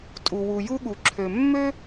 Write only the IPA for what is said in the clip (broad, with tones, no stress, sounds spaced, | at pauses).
tʼ u˩ w u˩ j u˥ ɠ u˩ ǁʰ ø˩ mː ø˥